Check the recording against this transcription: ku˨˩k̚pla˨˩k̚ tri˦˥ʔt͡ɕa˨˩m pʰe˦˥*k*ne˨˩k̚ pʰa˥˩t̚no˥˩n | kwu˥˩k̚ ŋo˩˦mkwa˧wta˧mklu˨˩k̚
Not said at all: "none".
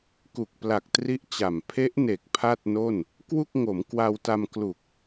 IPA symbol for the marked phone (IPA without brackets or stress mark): ʔ